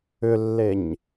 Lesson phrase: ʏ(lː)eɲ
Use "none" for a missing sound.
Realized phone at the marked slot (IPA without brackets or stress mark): lː